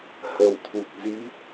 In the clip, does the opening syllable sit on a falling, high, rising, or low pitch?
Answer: low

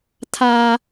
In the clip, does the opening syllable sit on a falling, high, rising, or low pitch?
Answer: high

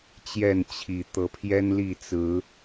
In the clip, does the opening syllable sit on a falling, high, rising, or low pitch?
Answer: falling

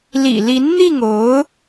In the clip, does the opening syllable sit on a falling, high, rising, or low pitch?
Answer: low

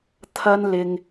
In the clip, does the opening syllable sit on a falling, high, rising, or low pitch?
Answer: high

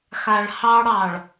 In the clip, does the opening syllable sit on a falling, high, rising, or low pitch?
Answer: low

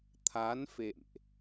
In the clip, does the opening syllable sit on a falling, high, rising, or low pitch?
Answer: rising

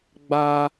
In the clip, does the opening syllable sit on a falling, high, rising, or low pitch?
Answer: high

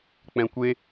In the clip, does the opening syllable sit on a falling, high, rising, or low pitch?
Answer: low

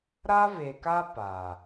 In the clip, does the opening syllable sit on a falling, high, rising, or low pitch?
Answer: high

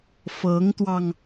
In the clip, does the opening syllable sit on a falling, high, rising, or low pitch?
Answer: rising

